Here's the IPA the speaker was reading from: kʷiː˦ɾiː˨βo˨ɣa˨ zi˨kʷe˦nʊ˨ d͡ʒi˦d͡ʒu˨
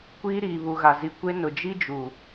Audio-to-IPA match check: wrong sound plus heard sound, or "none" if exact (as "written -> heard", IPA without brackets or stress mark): o˨ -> u˨